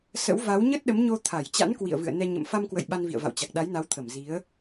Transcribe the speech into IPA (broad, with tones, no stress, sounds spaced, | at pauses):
s ə̰˧˥ w v a˨˦ w ɲ ə˦˥ t̚ ɗ ə˨˦ m ɲ o˧ t̪ʰ a˧˩ j t͡ɕ a̰˧˥ n k w ḭ˧˨ ə̯ v ɨ̰˧˨ ə̯ n ɛ˧ ɲ ə̰˧˨ m f a˧ m k w ə̰˧˨ j ɓ a˧ n v ḭ˧˨ ə̯ v a̰˧˨ w t͡ɕ a˨˩ k̚ ɗ a˨˦ j n a˨˦ w t̪ʰ ə˧˩ m z i˨˦ ə̯